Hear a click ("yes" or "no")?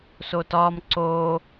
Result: yes